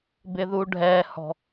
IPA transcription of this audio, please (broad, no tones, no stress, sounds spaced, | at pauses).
b ɪ ð u ɖʱ ɛ h ɔ̤